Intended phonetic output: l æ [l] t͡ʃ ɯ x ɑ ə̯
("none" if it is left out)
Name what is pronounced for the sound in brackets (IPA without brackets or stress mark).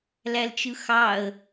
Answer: l